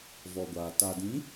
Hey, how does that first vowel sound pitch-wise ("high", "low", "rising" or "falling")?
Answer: low